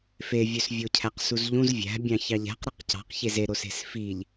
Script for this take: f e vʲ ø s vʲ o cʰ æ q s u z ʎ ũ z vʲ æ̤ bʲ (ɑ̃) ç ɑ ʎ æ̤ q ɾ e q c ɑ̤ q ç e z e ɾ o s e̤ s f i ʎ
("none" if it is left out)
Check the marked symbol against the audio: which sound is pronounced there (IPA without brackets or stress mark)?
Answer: ɑ̃